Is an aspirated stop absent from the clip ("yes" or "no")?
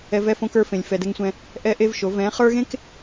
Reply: yes